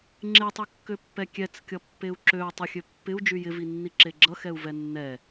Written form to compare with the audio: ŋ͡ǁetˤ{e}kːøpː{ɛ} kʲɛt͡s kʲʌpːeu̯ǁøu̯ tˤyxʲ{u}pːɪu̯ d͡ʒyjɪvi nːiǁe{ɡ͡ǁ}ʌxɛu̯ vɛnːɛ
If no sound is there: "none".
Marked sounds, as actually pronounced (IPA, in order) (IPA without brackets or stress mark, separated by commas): y, ɛ, ø, ɡ͡ǁ